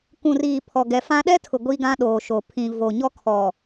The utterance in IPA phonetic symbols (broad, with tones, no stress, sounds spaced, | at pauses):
k ũ˨ r iː˨ pʰ ɔ˨ ɡ ɛ˨ f ã˦ ɗ ɛ˦ tʰ ʊ˨ ɡʷ i˦ ɡ ã˦ ɗ oː˨ ʃ o˨ pʰ ĩ˨ v o˨ ɲ ɔ˦ kʰ ɔ˨